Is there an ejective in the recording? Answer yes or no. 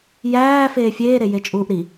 yes